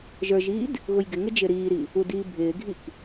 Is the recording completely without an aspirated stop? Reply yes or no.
yes